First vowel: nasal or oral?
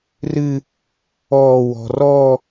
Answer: oral